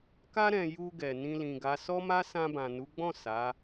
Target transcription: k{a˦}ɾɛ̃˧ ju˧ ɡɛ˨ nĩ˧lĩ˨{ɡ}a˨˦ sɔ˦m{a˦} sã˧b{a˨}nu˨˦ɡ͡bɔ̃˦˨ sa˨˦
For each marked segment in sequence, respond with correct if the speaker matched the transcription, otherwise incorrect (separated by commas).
correct, correct, correct, incorrect